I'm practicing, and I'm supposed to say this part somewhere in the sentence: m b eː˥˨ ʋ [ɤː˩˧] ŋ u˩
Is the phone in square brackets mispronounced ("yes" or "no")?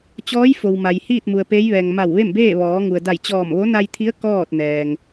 yes